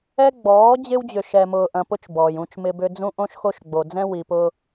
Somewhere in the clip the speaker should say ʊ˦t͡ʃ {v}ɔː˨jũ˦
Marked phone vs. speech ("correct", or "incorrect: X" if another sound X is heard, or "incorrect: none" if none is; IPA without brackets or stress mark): incorrect: b